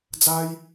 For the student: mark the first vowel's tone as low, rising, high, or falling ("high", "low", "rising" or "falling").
high